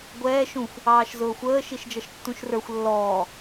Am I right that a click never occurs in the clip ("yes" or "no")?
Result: yes